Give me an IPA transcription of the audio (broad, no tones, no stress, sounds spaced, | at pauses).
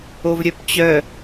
o v ɾʲ œ p t͡ɕ œ